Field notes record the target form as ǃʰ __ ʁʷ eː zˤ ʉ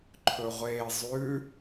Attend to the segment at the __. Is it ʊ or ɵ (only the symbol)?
ɵ